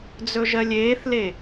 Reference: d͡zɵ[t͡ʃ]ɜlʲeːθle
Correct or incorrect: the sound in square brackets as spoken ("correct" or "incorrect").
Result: incorrect